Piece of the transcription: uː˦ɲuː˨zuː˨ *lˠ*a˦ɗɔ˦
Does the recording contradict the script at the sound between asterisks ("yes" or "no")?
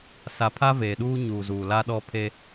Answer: yes